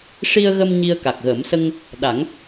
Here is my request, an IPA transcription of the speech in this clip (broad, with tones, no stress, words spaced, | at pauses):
ʂi˧ə̯ɣə˧m ɲi˧ə̯ka˨˩k̚ɣə˨˩˦m sə˧ŋ | ɗa˨˩˦ŋ